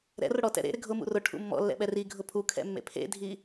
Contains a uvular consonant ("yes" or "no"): no